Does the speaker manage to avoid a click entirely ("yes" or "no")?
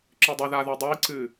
no